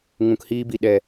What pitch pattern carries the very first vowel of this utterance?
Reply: low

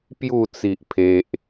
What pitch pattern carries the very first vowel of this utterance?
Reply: falling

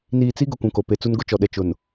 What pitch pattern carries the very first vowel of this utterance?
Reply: low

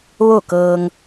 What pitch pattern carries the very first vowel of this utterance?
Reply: falling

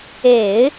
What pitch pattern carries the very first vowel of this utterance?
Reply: low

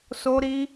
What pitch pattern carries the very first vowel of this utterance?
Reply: high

